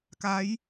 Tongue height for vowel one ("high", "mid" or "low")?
low